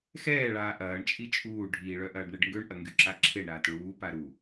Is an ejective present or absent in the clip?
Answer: present